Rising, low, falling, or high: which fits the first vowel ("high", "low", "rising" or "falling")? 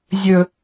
low